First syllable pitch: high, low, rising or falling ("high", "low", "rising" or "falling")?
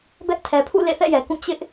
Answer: high